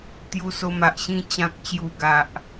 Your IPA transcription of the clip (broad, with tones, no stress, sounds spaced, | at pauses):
t̪ j u˧ s o˧ m a˨ ʔ ɕ ĩ˧ t͡ɕ ã˨ k̚ t͡ɕ j u˨˩ ɡ a˨ ʔ